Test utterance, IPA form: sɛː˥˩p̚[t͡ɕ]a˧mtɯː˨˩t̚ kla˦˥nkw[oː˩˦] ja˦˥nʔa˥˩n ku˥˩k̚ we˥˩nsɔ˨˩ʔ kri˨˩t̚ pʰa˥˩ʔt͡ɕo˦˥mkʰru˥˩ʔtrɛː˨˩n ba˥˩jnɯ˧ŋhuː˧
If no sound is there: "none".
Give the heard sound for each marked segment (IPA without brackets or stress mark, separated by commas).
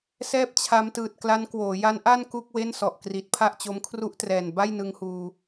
t͡ɕʰ, oː˩˦